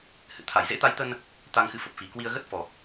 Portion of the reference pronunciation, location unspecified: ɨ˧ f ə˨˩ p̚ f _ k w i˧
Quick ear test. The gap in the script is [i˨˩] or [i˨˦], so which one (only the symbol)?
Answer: i˨˩